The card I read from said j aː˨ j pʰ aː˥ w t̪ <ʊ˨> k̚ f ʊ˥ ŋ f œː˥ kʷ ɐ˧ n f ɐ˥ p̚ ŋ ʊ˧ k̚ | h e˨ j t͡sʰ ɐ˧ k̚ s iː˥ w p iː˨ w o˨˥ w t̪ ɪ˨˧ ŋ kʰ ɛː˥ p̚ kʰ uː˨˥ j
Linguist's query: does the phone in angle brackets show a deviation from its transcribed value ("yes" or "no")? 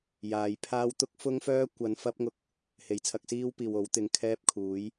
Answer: yes